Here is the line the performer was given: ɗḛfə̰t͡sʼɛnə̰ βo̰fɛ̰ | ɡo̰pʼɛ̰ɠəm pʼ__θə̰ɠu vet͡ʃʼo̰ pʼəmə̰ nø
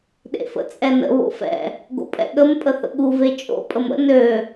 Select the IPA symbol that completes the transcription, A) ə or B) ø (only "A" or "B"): A